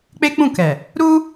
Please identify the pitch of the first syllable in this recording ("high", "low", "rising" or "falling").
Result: high